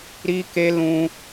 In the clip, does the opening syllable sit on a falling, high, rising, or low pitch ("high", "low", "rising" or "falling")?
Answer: high